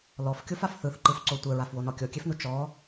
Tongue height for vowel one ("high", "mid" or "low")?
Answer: mid